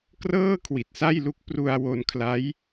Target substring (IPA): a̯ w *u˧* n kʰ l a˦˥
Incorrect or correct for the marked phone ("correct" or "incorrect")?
incorrect